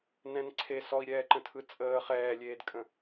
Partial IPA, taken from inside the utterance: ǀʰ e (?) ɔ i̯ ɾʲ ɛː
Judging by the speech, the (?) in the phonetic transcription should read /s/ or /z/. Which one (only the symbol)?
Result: s